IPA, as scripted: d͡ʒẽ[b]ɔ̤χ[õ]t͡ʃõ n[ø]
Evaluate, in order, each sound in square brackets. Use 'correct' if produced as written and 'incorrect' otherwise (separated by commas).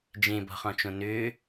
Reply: correct, incorrect, correct